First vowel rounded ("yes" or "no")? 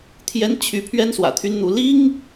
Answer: no